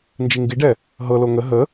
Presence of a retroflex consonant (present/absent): present